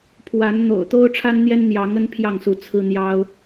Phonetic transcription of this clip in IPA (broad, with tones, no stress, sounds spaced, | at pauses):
pʰ w a˨˦ n n̪ o̰˨˩ ʊ̯ t̪ o˦ ʊ̯ ʈ͡ʂʰ a˦ n n̪ j ɛ˦ n n̪ j ɑ˨˦ ŋ ə˦ n pʰ j ɑ˥˨ ŋ s u˨˦ t͡sʰ ɹ̩˦ n̪ j ɑ˦ ʊ̯